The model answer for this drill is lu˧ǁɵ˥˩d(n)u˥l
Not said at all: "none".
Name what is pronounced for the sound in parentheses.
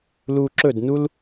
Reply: n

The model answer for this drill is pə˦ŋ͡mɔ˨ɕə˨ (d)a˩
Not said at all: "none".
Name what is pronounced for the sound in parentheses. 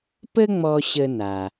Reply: n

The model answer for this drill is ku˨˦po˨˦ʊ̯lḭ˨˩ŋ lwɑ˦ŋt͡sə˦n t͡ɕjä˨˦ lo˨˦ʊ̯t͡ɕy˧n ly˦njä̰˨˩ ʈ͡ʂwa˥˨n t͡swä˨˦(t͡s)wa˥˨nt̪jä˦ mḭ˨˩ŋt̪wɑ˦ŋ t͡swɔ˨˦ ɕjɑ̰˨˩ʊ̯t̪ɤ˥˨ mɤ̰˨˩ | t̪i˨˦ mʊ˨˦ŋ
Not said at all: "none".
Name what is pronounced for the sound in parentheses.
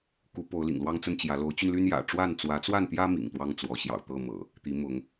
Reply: t͡s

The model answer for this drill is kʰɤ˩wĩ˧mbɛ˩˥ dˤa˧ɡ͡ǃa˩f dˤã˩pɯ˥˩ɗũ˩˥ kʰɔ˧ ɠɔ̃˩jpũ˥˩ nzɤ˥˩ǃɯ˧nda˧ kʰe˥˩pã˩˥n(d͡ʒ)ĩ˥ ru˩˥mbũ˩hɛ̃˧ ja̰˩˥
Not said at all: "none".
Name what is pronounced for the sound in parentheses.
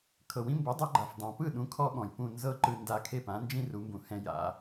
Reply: d͡ʒ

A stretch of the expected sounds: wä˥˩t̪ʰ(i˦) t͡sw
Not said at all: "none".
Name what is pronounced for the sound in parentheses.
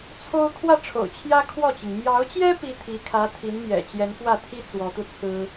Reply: i˥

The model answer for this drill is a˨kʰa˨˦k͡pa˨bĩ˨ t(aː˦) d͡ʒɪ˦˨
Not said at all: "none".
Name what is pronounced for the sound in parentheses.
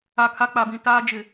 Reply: aː˦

